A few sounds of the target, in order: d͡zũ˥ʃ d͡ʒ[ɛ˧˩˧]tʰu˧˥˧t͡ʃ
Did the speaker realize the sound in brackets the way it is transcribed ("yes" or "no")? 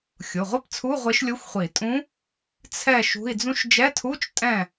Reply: no